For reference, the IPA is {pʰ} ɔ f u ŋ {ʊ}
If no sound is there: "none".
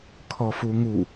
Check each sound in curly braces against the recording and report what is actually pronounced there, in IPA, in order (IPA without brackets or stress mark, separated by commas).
kʰ, u